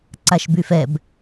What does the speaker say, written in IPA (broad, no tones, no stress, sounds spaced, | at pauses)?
ǀ a ʃ b y f ɛ b